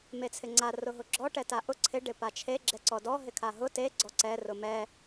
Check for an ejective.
absent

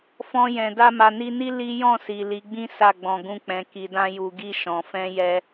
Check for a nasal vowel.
present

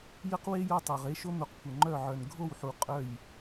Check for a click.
present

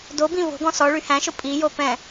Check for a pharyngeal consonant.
absent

